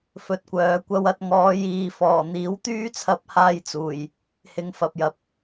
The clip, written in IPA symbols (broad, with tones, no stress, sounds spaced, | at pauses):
f ɵ˨˥ t̚ kʷ œː˨˧ kʷ ɐ˥ w ɐ˧ t̚ ŋ ɔː˨˧ j iː˨ f ɔː˨˩ n̪ iː˨˥ w t̪ yː˥ t͡sʰ ɐ˧ p̚ h aː˧ j t͡s uː˨˩ j | h ɪ˨˧ ŋ f ɐ˨ p̚ j ɐ˨ p̚